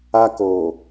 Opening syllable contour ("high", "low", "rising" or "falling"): high